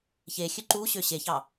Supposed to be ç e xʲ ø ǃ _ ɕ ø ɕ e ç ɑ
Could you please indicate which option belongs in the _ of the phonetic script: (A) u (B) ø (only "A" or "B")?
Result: A